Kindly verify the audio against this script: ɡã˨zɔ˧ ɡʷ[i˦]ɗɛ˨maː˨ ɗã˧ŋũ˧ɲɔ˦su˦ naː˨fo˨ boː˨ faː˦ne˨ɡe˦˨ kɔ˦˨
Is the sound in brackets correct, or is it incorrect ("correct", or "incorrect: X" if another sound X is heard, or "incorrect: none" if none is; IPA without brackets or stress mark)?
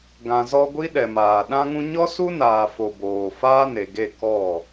correct